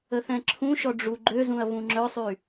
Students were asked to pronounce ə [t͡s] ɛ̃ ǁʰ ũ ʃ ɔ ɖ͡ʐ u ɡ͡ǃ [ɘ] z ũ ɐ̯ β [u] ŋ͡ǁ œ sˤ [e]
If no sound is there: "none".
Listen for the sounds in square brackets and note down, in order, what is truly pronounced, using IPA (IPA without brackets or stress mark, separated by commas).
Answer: θ, ø, ũ, y